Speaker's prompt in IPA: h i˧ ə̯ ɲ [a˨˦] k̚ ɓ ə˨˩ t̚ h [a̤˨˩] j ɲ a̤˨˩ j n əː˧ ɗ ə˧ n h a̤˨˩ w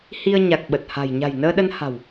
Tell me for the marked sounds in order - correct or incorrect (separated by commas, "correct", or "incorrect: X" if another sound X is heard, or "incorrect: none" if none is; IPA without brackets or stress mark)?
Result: incorrect: a˨˩, correct